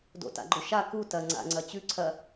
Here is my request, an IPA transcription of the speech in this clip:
d o̰ t a̰ ɡ͡ǃ o ʃ a k u t ɐ ŋ͡ǀ a̰ ŋ͡ǀ ɐ t͡ɕ ʉ ǀʰ ɐ

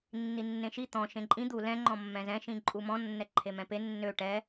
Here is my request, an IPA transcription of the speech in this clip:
nː i nː ẽ ʃ i t̪ ɔ̃ ʃ ẽ ǃʼ ĩ d̪ u l ɛ̃ ŋ͡ǃ ɔ̃ mː ɛ̃ z ɛ̃ ʃ ĩ ǃʼ u m ɔ̃ nː ɛ ǃʰ e m ɛ̃ p e nː ø ʈ ɛ

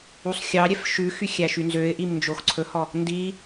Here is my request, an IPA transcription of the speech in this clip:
u sˤ xʲ ɑ ɾʲ ɛ f ʃ ʉ x y xʲ æ ʃ y n z ø ɪ̯ ʔ i m n d͡ʒ o x ǀʰ ɵ h ɔ | n d i

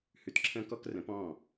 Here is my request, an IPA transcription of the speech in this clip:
h ʉ˧ t ǁʰ ə̃ː˦ k ɔ˦ k r ə̃˨˦ p ɔ̃˦˨

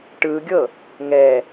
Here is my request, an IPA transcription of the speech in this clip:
ʈ ɯ ɡʲ ɤ | ŋ ɛ

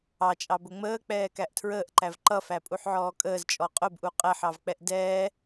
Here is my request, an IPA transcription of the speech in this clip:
ɑ t͡ʃʼ ɑ b ʊ ŋ͡m əː k͡p ɛː k æ ʔ tʰ ɹ əː ʔ ǃ æ v ǃ ʌ f æ pʼ u ħ ʕ ɔː kʼ əː z t͡ʃʼ ɔ qʼ ʊ b ʔ u qʼ ɛ ħ ɑ v k͡p ɛ ʔ d ɛː

